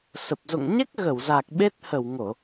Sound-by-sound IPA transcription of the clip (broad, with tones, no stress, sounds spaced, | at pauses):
s ə˨˩ p̚ z o̰˧˨ ŋ ɲ ɛ˦˥ k̚ ɣ ə˧˩ w z a˨˩ k̚ ɓ e˦˥ t̚ h ə˧˩ w ŋ o˧˩˨